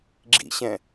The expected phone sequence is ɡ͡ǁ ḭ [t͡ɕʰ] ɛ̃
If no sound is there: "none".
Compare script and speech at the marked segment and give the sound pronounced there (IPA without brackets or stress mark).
ɕ